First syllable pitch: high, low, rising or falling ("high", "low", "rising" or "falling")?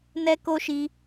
high